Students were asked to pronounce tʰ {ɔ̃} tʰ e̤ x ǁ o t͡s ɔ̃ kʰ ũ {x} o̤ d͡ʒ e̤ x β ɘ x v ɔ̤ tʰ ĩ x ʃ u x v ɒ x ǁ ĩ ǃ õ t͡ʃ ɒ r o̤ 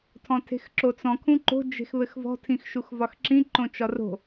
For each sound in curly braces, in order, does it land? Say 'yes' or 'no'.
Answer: yes, no

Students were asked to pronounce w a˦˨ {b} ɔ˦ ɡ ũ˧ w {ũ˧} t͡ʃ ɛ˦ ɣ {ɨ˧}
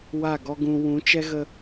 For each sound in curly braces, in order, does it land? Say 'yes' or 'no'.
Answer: no, no, no

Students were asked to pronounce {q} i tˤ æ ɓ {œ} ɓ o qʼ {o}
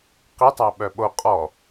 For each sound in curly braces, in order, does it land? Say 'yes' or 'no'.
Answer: yes, yes, no

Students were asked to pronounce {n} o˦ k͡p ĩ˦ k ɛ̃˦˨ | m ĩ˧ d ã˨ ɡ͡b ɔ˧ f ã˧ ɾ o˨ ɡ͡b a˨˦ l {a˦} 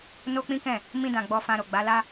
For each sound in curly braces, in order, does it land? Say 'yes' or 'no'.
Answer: yes, yes

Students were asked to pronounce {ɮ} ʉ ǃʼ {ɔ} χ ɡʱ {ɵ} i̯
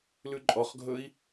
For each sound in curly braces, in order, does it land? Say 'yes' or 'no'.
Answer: no, yes, yes

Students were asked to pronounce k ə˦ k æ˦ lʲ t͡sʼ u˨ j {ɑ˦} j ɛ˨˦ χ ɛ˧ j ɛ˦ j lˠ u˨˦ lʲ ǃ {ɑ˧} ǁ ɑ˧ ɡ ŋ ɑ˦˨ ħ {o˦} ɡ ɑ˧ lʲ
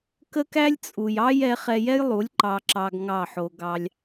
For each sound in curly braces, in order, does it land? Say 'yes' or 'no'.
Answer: yes, yes, no

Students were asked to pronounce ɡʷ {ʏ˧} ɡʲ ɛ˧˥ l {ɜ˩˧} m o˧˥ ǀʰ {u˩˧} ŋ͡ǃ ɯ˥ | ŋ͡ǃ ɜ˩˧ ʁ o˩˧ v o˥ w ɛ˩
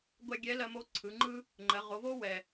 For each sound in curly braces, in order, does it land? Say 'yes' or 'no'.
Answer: no, no, no

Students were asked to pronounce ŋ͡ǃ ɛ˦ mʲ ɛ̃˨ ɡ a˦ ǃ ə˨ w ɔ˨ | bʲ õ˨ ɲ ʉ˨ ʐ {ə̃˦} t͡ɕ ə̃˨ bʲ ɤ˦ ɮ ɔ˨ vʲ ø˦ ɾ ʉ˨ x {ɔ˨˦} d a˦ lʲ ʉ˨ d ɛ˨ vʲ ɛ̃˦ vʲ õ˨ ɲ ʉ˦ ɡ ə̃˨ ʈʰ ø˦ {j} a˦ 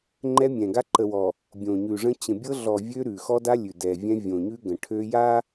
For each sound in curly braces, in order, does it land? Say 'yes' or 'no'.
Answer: yes, no, yes

